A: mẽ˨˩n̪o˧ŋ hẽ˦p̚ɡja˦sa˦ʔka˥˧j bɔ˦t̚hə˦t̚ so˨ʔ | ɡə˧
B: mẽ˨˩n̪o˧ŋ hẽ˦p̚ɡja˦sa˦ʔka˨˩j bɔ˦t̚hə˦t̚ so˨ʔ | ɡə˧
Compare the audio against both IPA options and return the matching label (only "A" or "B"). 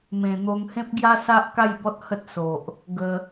A